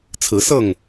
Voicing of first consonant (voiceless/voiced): voiceless